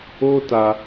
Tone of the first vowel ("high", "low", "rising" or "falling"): high